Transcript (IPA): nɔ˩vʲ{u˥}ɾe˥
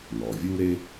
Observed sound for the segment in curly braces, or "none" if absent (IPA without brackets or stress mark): u˥